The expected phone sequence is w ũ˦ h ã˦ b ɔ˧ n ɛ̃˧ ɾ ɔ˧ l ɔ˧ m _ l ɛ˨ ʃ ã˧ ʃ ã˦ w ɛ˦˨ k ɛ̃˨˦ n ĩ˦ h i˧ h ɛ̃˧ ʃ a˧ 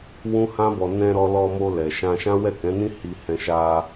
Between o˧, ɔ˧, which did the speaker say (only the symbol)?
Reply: o˧